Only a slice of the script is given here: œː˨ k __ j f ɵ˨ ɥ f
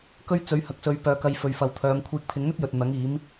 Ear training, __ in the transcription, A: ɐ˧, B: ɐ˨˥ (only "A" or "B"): A